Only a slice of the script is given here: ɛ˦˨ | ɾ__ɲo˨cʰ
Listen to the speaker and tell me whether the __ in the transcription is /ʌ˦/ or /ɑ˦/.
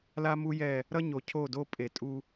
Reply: ʌ˦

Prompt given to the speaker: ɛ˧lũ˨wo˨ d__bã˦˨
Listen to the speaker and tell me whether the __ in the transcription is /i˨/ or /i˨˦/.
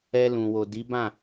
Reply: i˨˦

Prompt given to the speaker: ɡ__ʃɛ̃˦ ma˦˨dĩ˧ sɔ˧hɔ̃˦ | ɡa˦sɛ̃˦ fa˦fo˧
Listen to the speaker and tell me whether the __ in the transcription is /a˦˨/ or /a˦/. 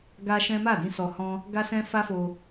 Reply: a˦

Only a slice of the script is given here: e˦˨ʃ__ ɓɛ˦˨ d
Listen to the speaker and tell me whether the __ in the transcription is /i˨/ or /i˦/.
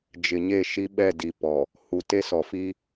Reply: i˦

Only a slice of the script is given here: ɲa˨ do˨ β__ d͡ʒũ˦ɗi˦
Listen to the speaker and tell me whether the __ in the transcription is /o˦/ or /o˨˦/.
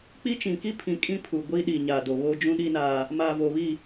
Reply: o˦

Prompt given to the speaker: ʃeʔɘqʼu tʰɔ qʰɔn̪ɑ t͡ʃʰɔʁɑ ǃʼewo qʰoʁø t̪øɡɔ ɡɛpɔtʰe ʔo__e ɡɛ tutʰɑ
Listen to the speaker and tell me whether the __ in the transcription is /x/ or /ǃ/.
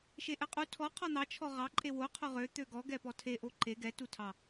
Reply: ǃ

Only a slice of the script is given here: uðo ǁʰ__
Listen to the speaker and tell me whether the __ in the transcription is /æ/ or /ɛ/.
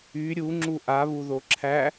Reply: æ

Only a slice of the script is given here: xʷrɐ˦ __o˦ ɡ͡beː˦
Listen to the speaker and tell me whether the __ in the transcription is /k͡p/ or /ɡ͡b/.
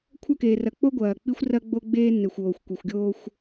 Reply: ɡ͡b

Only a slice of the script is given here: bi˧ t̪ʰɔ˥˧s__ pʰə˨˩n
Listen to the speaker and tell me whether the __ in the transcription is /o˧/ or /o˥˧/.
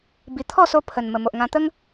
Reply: o˧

